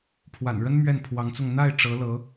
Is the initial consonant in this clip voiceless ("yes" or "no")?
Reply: yes